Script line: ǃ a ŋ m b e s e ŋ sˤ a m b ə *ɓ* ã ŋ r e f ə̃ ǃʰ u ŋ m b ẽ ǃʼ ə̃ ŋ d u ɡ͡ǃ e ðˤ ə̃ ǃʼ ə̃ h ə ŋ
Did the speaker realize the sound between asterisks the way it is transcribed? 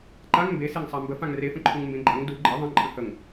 no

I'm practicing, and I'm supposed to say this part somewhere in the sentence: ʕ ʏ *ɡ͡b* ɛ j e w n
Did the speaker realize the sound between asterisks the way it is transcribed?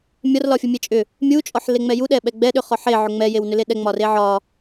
no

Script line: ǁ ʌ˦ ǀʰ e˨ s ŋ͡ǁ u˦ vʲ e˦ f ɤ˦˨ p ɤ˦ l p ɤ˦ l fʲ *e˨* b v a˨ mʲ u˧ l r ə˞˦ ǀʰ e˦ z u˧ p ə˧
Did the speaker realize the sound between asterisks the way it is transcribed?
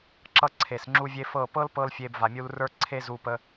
no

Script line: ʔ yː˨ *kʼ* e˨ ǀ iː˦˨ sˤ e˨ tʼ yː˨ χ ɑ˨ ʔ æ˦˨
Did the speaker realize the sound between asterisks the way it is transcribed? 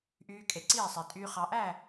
yes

